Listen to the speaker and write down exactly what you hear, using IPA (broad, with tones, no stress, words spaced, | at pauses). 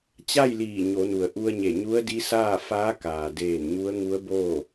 t͡ɕa˥˨jliː˧˩ ɲo˩˧nu˩ə̯ ʔu˧ə̯ɲe˧˩ ɲu˧˥ə̯di˧˥saː˥˨faː˧˥ kaː˩deː˧˩n ɲu˧˥ə̯ŋu˧˥ə̯boː˥˨